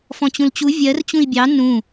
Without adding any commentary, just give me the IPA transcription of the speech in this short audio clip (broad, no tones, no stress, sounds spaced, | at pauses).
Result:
f ɔ̃ t͡ɕ ũ l t͡ɕ u vʲ ɜ r t͡ɕ ũ i̯ bʲ ɑ n ũ